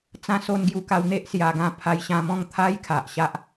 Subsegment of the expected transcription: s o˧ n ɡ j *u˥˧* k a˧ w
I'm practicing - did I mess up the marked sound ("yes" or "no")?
yes